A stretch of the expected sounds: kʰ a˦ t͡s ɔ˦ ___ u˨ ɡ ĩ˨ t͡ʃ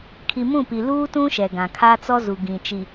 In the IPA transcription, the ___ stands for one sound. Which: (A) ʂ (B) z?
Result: B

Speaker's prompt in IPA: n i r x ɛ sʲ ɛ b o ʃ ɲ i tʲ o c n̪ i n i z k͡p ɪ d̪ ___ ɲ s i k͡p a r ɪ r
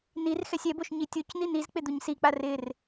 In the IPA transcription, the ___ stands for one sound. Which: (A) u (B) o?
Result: A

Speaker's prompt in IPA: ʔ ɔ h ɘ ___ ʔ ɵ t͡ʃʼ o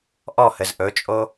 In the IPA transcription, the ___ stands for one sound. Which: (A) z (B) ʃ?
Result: A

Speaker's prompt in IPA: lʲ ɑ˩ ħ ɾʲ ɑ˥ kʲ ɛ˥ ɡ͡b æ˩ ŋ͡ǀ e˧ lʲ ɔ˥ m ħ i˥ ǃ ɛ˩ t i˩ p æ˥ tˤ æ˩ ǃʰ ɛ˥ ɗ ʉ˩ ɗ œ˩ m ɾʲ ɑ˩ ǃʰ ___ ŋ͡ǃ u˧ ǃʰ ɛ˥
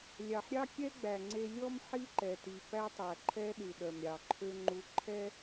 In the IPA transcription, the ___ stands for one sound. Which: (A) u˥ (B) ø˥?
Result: B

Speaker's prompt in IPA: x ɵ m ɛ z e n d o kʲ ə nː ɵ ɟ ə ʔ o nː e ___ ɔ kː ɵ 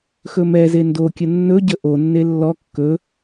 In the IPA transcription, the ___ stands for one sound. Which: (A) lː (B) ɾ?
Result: A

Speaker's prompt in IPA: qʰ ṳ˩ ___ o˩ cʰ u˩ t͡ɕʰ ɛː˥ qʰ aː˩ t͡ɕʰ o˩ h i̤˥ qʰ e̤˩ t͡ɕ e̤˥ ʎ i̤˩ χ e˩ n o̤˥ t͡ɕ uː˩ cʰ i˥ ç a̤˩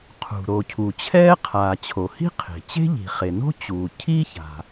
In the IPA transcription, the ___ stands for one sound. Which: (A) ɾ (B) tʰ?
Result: A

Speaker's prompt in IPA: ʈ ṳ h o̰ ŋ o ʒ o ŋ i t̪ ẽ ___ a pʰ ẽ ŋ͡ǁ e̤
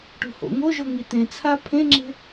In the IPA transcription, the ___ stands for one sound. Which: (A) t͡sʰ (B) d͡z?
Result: A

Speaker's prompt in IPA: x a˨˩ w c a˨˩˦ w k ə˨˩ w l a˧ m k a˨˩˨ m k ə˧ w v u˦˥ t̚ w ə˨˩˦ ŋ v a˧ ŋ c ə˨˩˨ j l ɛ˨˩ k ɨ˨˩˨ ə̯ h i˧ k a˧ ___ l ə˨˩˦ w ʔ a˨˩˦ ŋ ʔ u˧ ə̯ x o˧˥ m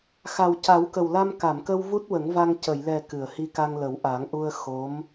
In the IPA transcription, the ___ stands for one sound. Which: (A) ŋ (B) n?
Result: A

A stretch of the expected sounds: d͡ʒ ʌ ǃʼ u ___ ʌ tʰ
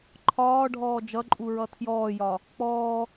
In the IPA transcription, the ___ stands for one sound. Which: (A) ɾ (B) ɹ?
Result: B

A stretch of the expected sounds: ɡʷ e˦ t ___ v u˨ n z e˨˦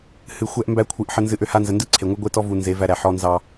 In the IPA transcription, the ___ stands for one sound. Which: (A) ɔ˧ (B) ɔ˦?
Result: B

